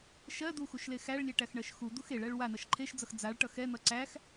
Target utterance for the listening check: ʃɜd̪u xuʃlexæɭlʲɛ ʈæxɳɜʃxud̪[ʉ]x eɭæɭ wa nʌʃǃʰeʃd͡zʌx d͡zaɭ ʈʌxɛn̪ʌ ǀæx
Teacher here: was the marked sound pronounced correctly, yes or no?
no